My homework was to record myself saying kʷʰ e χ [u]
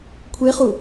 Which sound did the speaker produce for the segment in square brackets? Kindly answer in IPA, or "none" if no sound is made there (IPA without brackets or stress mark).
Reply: u